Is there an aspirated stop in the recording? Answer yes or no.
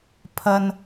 yes